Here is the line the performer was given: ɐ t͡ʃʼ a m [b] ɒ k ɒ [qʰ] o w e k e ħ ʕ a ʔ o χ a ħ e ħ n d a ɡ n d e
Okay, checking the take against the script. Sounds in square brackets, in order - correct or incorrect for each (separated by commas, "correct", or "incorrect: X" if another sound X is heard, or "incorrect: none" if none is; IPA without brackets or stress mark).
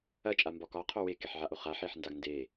correct, correct